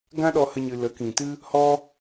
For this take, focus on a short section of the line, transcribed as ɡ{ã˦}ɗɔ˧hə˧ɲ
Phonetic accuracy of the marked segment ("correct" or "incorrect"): correct